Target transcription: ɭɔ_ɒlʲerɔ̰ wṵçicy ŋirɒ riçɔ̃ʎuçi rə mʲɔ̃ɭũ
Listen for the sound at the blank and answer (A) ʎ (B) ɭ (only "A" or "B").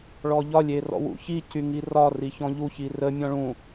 A